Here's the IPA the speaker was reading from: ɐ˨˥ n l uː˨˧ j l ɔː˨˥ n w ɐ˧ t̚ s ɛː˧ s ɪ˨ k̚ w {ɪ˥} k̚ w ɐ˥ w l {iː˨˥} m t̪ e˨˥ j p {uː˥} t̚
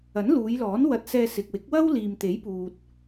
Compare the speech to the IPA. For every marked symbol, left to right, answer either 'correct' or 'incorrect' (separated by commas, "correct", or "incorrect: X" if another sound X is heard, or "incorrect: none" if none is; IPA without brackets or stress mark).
incorrect: ɪ˨˥, incorrect: iː˨, incorrect: uː˨